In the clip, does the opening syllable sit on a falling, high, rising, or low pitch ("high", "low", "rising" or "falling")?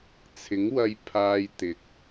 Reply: rising